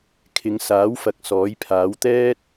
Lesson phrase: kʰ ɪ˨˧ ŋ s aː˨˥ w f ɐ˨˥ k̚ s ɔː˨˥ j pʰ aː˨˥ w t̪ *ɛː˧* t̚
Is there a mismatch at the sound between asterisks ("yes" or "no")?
yes